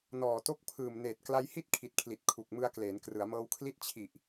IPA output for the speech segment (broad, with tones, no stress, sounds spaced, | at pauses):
n ɔː˨˩ t o˦˥ k̚ pʰ ɯː˨˩ m n eː˨˩ t̚ k l a˧ j h i˥˩ t̚ kʰ i˨˩ t̚ kʰ l i˨˩ t̚ kʰ u˨˩ k̚ m ɯ˧ a̯ k l eː˩˦ n k r ɯ˩˦ a̯ m ɤː˧ w kʰ l i˥˩ t̚ t͡ɕʰ i˨˩ ʔ